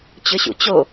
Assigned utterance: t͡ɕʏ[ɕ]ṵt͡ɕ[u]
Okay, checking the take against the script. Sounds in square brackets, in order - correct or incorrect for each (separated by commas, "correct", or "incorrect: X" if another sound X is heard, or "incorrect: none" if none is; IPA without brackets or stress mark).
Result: correct, incorrect: o